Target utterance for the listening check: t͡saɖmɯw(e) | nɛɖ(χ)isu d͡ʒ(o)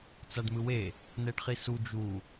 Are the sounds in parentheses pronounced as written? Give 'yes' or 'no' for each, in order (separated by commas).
yes, yes, no